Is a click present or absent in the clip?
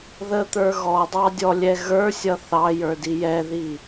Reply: absent